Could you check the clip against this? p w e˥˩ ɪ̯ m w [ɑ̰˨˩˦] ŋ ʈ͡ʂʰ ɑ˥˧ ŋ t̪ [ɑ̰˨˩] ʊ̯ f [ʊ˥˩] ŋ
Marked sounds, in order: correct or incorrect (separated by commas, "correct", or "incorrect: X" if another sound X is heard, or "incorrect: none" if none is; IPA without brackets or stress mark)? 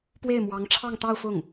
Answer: incorrect: ɑ˧˥, incorrect: ɑ˥˧, correct